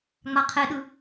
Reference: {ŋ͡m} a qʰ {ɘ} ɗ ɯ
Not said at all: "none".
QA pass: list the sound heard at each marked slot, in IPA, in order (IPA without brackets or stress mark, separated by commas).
ŋ͡m, e